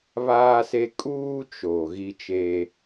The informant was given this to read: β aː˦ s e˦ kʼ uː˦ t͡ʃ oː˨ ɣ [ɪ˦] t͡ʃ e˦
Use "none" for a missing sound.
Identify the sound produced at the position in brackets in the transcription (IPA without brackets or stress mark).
i˦